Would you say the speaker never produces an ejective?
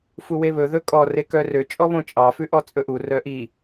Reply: no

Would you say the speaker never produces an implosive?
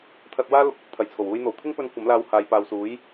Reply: yes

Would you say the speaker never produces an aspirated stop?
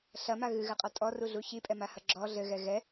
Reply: yes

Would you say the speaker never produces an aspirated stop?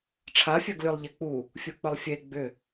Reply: no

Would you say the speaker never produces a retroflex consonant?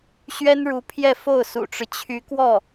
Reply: no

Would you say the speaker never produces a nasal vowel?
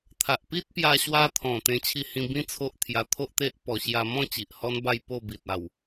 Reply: no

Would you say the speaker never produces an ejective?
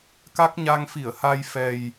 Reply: yes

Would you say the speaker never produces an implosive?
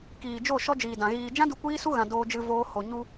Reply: yes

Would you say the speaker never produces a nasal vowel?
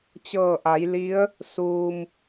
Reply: yes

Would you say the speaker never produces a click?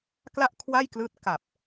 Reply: yes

